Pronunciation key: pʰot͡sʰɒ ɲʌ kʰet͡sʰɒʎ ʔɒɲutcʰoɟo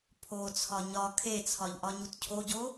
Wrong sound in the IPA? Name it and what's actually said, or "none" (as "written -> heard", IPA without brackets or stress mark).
ʌ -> ɒ